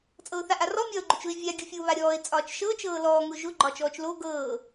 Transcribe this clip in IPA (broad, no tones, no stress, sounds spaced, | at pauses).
t͡sʼ ɤ ʊ̯ θ a ʔ a r ɔ mʲ ɒː ʊ̯ ɡ͡ǃ ʊ t͡ʃ ʊ ɪ̯ vʲ a ɡʲ ʊ fʲ o β a ɾʲ ɔː ɪ̯ t͡sʼ ɒː t͡ʃ ʃ ɤː t͡ʃ ɤː l ɔː ŋ ʊ ʒ ʊ ɡ͡ǃ ɒː t͡ʃ ɔː t͡ʃ l o ɡ ɤː